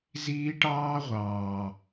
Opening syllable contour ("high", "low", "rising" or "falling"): high